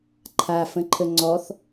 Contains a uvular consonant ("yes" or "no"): no